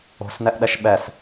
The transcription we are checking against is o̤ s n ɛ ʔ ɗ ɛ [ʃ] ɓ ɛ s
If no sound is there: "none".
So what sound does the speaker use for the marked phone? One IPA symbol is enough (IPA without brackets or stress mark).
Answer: ʃ